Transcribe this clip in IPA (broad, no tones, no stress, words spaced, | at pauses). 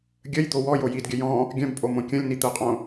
ɡʲəjd̪o wɔjo jidɡʲə jɔ̃ | ɡʲœ̃bpʼo mõkʲə̃lʲni t̪əqʼõ